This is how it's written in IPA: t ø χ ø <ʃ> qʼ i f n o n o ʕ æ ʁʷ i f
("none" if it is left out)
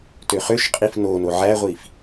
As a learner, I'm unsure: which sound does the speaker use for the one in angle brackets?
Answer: ʃ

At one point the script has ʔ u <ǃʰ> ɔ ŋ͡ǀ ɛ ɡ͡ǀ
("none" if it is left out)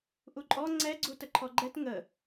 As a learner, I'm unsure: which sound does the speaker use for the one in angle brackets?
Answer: ǃʼ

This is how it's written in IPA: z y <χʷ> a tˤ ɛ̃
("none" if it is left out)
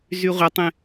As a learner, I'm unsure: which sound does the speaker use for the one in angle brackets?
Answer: ʁʷ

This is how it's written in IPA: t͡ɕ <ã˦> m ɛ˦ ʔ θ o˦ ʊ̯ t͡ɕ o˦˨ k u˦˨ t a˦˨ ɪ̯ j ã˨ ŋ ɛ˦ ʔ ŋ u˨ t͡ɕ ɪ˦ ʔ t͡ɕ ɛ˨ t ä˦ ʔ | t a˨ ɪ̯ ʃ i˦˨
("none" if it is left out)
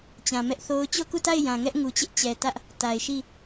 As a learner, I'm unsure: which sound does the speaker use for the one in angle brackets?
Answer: ã˨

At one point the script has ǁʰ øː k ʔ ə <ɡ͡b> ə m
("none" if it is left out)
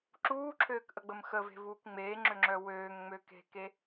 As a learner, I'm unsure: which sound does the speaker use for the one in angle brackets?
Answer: ɡ͡b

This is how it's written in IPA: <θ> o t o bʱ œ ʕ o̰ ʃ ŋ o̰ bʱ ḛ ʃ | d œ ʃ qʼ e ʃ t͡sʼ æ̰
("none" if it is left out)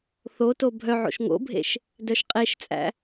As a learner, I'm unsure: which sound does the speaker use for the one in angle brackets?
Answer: θ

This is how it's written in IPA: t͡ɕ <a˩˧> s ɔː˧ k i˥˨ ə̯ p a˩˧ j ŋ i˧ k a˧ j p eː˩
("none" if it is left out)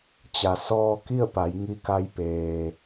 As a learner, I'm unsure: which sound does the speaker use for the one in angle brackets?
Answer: a˩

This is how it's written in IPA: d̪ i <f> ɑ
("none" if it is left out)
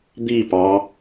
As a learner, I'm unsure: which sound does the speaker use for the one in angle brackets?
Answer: p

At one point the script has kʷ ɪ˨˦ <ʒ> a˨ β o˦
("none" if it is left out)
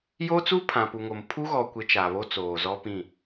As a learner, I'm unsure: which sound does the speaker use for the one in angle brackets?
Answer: t͡ʃ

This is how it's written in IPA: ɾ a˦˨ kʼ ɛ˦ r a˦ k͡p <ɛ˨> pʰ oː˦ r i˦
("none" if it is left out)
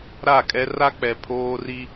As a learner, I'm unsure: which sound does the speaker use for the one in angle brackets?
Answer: ɛ˨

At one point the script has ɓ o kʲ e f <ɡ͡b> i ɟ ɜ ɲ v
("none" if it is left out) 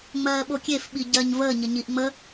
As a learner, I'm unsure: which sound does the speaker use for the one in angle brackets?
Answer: ɓ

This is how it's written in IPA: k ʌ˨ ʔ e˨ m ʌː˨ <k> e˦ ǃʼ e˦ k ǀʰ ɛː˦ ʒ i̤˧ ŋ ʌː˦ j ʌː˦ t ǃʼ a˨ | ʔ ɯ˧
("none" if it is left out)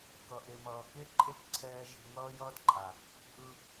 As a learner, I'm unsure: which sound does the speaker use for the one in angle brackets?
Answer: k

